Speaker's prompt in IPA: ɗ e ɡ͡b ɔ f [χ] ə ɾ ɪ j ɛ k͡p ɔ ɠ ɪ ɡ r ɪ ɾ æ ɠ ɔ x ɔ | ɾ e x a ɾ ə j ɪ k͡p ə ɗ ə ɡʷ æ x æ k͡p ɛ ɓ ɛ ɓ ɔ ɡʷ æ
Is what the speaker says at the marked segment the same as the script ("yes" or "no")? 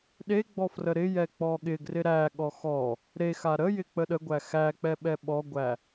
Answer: no